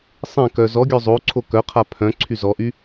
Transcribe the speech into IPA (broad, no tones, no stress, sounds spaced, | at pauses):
sˤ ẽ k œ z ɔ ɡʲ œ zˤ o ǀʰ o k œ qʰ a pʰ œ̃ ǀʰ y z ɔ ʔ y